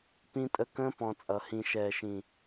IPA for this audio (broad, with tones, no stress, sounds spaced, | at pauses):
p ĩ˦ tʼ ə˦ k ə̃ː˦ p ɔ̃˧ t͡sʼ ʌ˨ h ĩ˧ ʃ ɛː˨ ʃ ĩ˨